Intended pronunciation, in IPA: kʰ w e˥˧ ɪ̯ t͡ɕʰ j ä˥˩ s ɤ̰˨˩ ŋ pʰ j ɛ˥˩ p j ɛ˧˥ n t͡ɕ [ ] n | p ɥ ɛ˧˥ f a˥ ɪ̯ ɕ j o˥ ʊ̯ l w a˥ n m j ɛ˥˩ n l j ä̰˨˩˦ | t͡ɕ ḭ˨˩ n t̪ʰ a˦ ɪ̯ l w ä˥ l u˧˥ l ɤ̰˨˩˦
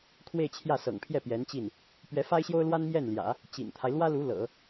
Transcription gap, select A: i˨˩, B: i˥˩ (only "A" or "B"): B